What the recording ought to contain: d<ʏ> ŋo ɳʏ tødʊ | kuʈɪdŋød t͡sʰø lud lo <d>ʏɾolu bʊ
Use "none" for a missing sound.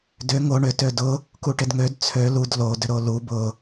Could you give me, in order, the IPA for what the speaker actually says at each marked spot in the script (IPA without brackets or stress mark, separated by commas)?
ʏ, d